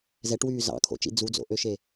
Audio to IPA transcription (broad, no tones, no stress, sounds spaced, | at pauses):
z ɛ ʈ w yː z ɑ̰ kʰ o̰ t͡ʃ ḭ d͡z u d͡z o̰ ʔ ø ʃ e